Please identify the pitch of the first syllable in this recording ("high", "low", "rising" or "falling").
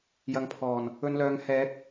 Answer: rising